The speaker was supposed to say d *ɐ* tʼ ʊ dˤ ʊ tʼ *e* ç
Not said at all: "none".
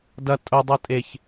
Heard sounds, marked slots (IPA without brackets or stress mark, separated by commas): ɐ, e